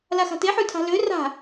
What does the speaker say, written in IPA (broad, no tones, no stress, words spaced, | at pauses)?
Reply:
laxa̤te ħʉtʰa̤lø ra̤